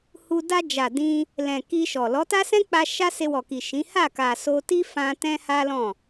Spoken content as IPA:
h u˧ d a˧ d͡ʒ a˨ d ĩ˧ | l ɛ̃˨ k i˧ ʃ ɔ˨ l ɔ˨˦ t a˦ s ɛ̃˦ k͡p a˧ ʃ a˦ s e˧ w ɔ˨ k i˨ ʃ ĩ˨˦ h a˦˨ k a˨ s o˧ t i˦ f ã˧ t ɛ̃˦ h a˦ l ɔ̃˦˨

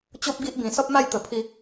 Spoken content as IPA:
t͡ɕ o˦ p̚ ɡ i˦ ʔ b ĩ˨˩ s ɔ˦ p̚ m a˥˧ j t̪ ə˨˩ pʰ i˧

